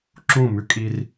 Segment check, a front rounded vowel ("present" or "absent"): absent